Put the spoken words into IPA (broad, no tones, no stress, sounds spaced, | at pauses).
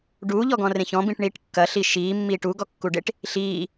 ɖ uː ʎ ɔ ɡ ɔ̃ r ẽ ç ɔ̃ b ĩ ʈ ɳ iː ʈ kː ɐ ɬ i ʃ iː mː iː ʈ u ɡ ɔ kː u ɖ e ʈ | ɬ iː